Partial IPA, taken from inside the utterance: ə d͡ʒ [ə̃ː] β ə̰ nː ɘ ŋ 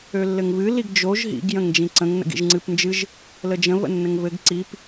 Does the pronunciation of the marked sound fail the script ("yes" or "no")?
yes